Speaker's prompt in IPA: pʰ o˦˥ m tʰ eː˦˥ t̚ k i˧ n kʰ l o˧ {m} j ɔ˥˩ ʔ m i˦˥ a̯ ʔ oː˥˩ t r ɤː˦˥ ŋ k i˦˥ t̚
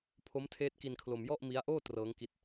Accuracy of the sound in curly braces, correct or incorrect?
correct